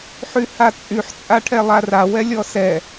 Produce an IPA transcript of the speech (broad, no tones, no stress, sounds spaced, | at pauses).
ħ y h a t͡sʼ y ħ t͡sʼ a ʈʰ ɛ lˠ a r a w ɛ lʲ ɔ s ɛ